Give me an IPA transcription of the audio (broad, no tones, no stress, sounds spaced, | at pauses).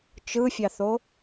t͡ʃ ɯ fʲ ɑ θ o